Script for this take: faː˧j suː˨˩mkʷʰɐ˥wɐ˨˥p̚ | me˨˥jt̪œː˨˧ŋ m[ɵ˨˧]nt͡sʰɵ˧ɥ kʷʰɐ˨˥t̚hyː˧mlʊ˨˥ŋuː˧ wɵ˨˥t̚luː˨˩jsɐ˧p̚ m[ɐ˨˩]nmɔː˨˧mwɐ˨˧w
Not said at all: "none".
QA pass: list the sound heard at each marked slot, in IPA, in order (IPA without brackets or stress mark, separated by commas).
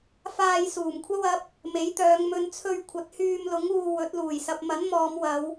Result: ɵ˨˧, ɐ˨˥